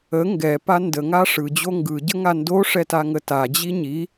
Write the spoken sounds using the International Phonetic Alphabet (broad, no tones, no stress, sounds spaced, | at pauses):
ə ŋ ɡ ɛ p a n d ə ŋ a ʂ ɯ d͡ʑ o ŋ ɡ ɯ ɟ ə ŋ a n d o ʂ ɛ t a ŋ ə t a d͡ʑ i ɲ i